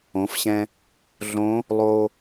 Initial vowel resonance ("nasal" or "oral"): nasal